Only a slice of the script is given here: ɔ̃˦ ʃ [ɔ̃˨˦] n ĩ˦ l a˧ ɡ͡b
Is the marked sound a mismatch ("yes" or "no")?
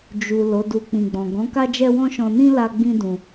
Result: yes